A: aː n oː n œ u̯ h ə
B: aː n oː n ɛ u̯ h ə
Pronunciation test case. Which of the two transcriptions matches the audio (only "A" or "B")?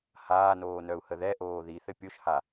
A